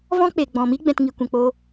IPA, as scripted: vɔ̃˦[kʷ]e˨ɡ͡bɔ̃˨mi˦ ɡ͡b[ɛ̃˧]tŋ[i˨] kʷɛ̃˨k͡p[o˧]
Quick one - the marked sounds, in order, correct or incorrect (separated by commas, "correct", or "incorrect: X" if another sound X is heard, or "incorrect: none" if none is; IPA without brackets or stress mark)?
incorrect: k͡p, correct, correct, correct